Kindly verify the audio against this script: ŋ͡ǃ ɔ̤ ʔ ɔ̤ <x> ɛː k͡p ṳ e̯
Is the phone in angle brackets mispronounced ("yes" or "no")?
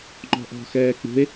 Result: no